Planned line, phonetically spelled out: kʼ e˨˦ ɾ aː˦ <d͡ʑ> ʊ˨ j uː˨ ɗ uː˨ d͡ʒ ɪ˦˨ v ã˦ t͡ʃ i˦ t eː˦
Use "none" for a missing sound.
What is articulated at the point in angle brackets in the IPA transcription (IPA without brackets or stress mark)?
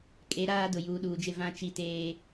d